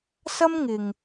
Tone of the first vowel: high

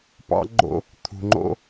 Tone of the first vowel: high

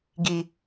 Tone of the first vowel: low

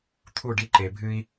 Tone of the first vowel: falling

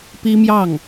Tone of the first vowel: high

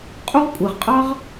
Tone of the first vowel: high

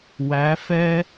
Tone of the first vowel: rising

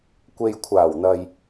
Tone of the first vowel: low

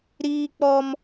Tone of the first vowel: high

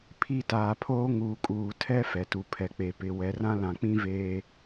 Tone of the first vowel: falling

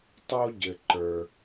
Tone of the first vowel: high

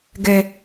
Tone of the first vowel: low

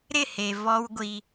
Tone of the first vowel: falling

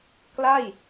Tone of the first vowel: falling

